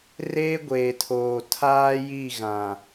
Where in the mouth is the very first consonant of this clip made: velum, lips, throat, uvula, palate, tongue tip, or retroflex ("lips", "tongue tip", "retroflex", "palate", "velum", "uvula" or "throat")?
tongue tip